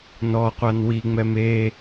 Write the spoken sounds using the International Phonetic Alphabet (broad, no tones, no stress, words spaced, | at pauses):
nɔqʷan wiŋ͡mɛm e